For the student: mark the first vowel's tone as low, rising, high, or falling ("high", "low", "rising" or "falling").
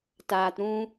low